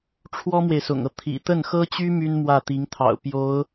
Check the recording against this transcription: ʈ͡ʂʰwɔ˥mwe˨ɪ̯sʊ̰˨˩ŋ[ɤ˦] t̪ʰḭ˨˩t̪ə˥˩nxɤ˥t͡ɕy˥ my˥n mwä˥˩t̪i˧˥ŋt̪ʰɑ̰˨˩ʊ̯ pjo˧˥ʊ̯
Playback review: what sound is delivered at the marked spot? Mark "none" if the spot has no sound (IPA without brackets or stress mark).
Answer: ɤ˦